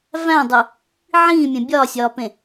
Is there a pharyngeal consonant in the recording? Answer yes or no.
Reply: yes